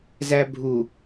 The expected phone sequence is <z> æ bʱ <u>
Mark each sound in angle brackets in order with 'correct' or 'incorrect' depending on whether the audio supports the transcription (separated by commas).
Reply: correct, correct